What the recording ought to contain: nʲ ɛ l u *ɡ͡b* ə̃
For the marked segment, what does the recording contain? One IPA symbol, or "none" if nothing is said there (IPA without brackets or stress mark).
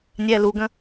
ɡ